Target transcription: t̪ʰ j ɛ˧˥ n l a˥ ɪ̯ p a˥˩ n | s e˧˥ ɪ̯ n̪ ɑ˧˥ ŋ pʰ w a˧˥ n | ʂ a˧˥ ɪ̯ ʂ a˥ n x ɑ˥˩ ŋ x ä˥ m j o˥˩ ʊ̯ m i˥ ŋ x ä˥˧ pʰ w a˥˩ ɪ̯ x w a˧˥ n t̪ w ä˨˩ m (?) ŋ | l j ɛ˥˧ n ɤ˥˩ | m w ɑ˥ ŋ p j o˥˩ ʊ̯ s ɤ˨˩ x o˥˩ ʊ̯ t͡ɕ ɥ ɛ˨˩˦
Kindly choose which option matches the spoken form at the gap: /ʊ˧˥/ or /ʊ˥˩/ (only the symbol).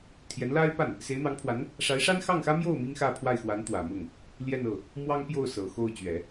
ʊ˥˩